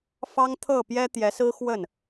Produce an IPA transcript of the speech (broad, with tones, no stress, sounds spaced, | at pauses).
f ɑ˥ ŋ t̪ʰ ɤ˥˩ p j ɛ˥ t̪ j ɛ˧˥ s ɹ̩˥ x w ə˥˩ n